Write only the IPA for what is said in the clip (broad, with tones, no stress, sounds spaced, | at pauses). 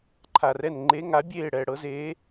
ǃʰ a˨ r ɛ˦˨ n ŋ͡ǃ e˧˥ ŋ a˩˥ bʲ eː˦˨ ɽ ɛː˨ ɽ ɤ˧˥ z eː˧˥